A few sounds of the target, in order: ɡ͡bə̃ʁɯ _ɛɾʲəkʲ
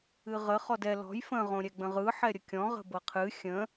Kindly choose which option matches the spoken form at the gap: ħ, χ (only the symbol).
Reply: ħ